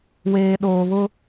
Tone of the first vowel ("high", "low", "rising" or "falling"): low